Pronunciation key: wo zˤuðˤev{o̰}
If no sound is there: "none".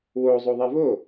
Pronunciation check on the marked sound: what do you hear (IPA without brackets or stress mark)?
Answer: o